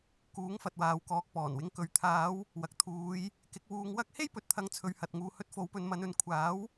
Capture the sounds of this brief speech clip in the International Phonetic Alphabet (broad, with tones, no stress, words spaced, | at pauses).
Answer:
kuː˨˥ŋfɐ˨t̚waː˨w kɔː˨k̚pɔː˨˩nwɪ˨˥ŋkɵ˨˧ɥ t̪ʰaː˨˧w | wɐ˨k̚t̪ʰuː˨˧j | kɪ˨˥k̚wuː˧ŋwɐ˥k̚ he˥jpɵ˨t̚t̪ʰɐ˨˧ŋ t͡sʰɵ˨ɥhɐ˨t̚ŋuː˨hɵ˧t̚ fo˨˥wpɵ˨˧nmɐ˨˧n ɵ˨˧nkʷʰaː˨˥w